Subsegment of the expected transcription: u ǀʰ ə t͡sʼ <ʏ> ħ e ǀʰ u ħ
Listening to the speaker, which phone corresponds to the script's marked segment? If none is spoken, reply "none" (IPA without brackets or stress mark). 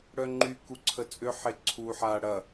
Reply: ʏ